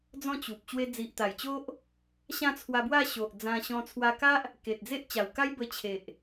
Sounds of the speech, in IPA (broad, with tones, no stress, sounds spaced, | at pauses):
d͡z ɔ̃˥˧ t͡ɕ u˨ p̚ t͡ɕ w e˧ d͡z i˨ ʔ t̪ a˨˩ j t͡ɕ o˦ ʔ | ɕ ã˥˧ t͡sʰ w a˧ b w a˥˧ ɕ o˨ ʔ d͡z ã˧ ɕ ɔ̃˧ t͡sʰ w a˧ k a˦ ʔ | k e˨ t̚ d͡z e˦ ʔ t͡ɕ a˨˩ w k a˦ j b ə˧ t͡ɕʰ e˨ ʔ